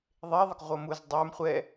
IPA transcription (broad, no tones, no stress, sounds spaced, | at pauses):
ðˤ e ðˤ ɪ k ʁʷ ʌ m u z dˤ ə˞ m χʷ ɛ